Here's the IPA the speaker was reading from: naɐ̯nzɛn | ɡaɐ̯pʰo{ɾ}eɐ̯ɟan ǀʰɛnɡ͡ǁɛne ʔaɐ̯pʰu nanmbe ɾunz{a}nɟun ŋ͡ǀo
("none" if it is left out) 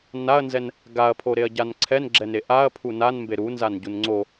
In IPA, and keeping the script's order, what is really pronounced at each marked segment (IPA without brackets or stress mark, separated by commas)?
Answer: ɾ, a